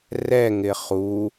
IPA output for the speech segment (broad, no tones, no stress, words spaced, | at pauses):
rɛŋɪ χu